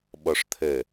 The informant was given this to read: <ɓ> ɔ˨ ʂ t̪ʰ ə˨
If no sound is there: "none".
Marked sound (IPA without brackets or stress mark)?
ɓ